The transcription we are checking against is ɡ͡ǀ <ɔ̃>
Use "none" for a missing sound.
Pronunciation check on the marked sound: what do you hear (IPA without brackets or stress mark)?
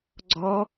ɔ